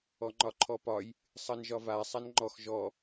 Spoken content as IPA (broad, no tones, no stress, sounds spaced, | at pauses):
ɔ ŋ͡ǃ ɒ ǃʰ ɔ p ɒ j | sˤ ʌ n ʒ ɒ v a sˤ a n ŋ͡ǃ ɔ x ʒ ɔ